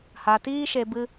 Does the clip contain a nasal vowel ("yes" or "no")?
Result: no